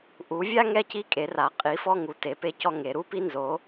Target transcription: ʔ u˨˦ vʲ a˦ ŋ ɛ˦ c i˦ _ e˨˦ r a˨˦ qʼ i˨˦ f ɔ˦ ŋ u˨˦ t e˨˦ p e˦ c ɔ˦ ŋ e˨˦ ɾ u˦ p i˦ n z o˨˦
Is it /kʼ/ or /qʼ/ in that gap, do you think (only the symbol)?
kʼ